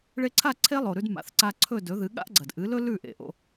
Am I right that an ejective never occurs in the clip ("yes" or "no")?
yes